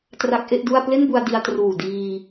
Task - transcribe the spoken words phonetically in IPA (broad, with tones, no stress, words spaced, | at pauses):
tra˦˥k̚ʔe˥˩ʔdu˥˩a̯ ple˥˩nbu˧a̯ di˧a̯ truː˨˩ diː˧